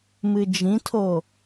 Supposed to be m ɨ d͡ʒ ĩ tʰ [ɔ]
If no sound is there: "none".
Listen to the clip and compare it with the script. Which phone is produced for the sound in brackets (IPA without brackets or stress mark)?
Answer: o